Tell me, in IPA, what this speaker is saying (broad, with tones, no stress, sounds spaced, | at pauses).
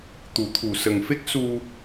t̪ u˨˩˦ t̪ʰ u˨˩ s ə˨˩ ŋ f e˦˥ k̚ s u˧